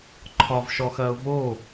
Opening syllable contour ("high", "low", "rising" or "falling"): high